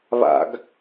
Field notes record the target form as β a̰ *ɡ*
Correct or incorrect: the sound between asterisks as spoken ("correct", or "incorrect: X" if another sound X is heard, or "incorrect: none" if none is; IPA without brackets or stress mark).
correct